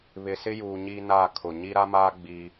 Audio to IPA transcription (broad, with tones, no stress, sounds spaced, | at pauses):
β ɪ˨ s ɪ˦ j uː˨ ɲ i˦ n a˦˨ kʰ ʊ˨ ɲ i˦ ɾ a˦ m aː˦ ɡ͡b i˦